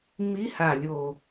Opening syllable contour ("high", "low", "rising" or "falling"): rising